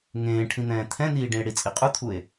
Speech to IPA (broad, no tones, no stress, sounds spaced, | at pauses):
ŋ ẽː ʈʰ ĩ n̪ ɛ̃ː t̪ʰ ɛ̃ n̪ iː ɖ ĩ e̯ ɽ i t͡sʼ i qʼ u t̪ʰ u e̯